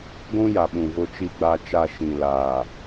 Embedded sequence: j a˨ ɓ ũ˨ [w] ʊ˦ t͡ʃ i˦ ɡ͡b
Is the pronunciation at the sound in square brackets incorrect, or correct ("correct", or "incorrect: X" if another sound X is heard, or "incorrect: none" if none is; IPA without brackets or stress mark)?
incorrect: v